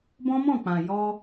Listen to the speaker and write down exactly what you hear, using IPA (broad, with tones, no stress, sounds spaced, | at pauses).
b ɔ̃˦ m ɔ̃˦˨ k͡p ã˨ j ɔ˧